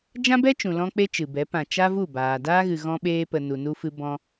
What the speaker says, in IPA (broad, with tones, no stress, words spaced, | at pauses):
d͡ʒã˦bɛ˦t͡ʃũ˨ lɔ̃˦k͡pe˦t͡ʃɨ˨bɛ˨˦ pã˨ t͡ʃa˦vu˦˨baː˨ daː˦ɣɨ˨ ɣɔ̃˧ɓeː˧pə˨ nu˨nu˧fɨ˧ bɔ̃˧